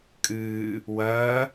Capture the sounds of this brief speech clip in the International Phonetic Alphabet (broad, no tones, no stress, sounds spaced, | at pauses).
kʼ ɨː | w ɐː